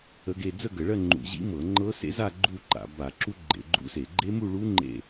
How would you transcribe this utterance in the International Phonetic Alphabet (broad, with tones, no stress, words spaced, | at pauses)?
ə˦˥ɡe˥˧ d͡zə˥˧ɡə˧˩˧ ɭɜ˥˧ŋ͡ǃṵ˧˩˧ʑḭ˦˥mɤ˧˩˧ ŋ͡ǃɤ˦˥sḛ˦˥za˥˧ ɡ͡ǃu˥˧ǃa̰˧˩˧ ba˧˩˧ǁu˦˥ ɡ͡ǃḛ˧˩˧ɡ͡ǃṵ˦˥se˧˩˧ ɡ͡ǃe˦˥mu˥˧ɭu˦˥ ŋ͡ǃḛ˥˧